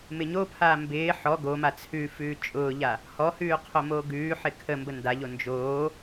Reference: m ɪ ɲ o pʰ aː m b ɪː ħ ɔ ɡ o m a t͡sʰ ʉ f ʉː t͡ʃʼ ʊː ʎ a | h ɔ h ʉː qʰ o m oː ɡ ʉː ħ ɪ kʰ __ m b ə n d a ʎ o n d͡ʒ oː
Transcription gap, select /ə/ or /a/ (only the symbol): ə